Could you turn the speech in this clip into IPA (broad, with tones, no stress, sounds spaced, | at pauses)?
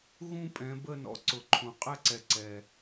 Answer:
ɣ ũ˥˧ pʼ ɛ̃˩˧ b ə˥˧ n ɔ̰˩˧ ǀ ʊ˩˧ ǃʰ ũ˩ qʼ ɛ˥˧ ǀ ɛ˩˧ ǀ ɛ˩